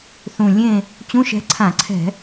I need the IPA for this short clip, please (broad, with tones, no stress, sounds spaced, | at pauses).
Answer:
θ ũ˨˩ lʲ ẽ˦˨ | t͡ɕ ũ˧˥˧ ʃ ɛ̤˧˥ ǀʰ ã˧˩˧ ǀʰ ɛ̤˧˩˧